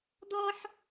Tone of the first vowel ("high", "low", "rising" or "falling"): high